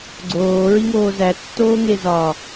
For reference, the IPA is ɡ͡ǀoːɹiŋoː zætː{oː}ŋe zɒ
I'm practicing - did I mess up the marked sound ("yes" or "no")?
no